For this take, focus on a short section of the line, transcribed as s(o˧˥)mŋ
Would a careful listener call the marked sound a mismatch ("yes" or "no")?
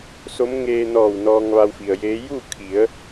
no